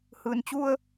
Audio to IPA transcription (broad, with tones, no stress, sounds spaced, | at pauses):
h ɯː˩ n t͡ɕ u˧ ə̯